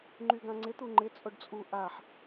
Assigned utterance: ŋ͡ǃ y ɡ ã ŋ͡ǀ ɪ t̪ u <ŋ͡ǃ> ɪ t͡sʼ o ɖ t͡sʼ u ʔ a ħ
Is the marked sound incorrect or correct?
correct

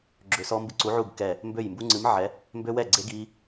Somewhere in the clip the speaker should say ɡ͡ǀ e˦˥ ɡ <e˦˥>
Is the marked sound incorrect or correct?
incorrect: i˦˥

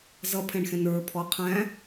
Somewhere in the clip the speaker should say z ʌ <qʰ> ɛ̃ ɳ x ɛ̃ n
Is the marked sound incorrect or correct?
incorrect: pʰ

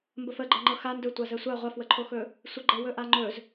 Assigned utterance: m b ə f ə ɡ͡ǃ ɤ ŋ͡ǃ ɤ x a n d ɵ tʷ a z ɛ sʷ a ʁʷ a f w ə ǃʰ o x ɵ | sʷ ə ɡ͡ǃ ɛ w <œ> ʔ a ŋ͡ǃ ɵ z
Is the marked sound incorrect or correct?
incorrect: ɵ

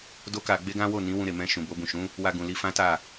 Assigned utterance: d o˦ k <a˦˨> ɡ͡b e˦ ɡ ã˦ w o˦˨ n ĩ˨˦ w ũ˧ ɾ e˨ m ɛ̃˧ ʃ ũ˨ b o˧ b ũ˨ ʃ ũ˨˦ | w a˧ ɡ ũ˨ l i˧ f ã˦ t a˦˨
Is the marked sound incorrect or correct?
incorrect: a˧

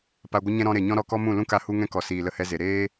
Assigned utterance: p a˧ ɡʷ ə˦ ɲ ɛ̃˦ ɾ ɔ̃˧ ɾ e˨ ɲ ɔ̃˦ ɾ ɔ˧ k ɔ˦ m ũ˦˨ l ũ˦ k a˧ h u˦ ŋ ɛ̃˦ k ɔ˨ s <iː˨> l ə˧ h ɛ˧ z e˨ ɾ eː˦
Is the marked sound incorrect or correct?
correct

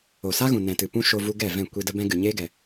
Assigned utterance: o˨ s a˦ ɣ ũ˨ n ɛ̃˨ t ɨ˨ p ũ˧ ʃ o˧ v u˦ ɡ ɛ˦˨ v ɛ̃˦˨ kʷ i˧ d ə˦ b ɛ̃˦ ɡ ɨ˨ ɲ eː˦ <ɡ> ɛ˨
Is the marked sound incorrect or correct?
correct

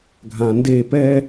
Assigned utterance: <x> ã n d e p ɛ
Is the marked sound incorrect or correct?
incorrect: ɡʱ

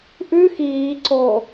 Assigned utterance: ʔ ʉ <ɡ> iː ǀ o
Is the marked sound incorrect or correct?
incorrect: x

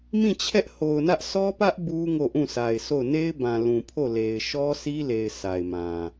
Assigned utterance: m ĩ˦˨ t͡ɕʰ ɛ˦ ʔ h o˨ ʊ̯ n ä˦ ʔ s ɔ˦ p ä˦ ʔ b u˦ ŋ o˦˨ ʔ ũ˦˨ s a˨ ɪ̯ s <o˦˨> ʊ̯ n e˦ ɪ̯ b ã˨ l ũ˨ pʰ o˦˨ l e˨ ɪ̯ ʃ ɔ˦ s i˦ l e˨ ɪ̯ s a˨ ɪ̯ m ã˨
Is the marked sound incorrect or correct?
correct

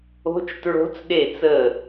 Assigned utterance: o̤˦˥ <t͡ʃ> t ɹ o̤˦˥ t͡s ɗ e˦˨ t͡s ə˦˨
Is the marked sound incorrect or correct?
correct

